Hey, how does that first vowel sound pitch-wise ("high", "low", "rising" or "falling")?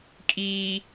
low